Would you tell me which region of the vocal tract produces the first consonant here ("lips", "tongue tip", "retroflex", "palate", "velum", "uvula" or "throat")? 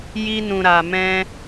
palate